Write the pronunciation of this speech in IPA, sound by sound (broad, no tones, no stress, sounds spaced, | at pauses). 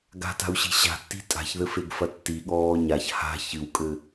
ɡ a̤ t a̤ u̯ ɕ i̤ ɕ a̤ tː i̤ tʼ a̤ ç ð ɘ f e ɡ f ɐ tː i ɠ ɔː ɲ a ç h a̤ ç ɨ w kʼ ɘ